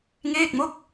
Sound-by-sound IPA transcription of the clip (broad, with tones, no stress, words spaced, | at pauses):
ŋeː˥˩k̚mo˥˩k̚